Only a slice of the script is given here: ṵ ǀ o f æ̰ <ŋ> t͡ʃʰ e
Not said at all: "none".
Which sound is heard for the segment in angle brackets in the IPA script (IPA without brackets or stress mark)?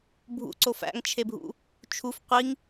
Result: ŋ